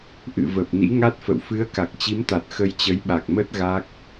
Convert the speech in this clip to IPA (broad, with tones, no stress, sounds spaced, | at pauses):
ʔ ɨ̰˧˨ v ə˨˩ p̚ n ḭ˧˥ ŋ a˦˥ t̚ f ə̰˧˨ w f ɨ˨˦ ə̯ k a˨˩ k̚ t͡ɕ i˨˦ m t̪ a˨˩ t̚ x ə˧ j t͡ɕ ə˨˦ j ɓ a˨˩ k̚ m ə˦˥ t̚ ɣ a˦˥ k̚